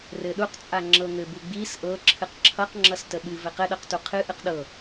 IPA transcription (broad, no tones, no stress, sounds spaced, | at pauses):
r ɘ ɗ u q t͡sʼ a ŋ͡ǁ ɤ ŋ ɘ b u ɡ͡b i s ʔ ɤ ǁʰ ɨ q ǁʰ ʌ q ŋ͡ǁ ʌ s t ə ɓ ɨ v ɘ q ɘ ɗ ɤ q t u qʰ ɨ ʔ ɨ q ɗ ɤ